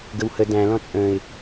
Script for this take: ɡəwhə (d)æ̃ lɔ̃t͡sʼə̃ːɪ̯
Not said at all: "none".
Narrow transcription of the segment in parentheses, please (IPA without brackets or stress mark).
d